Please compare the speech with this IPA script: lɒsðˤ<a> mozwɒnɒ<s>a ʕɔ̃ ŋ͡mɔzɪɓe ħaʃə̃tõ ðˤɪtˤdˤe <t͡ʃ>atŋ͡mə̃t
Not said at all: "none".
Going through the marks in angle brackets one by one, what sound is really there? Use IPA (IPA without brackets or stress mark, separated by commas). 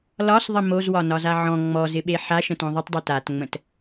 ə, z, t